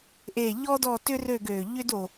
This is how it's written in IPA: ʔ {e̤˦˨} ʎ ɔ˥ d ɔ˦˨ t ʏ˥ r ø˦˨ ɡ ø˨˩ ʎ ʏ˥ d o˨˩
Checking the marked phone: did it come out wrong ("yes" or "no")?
yes